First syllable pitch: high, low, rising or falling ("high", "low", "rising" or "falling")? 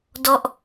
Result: falling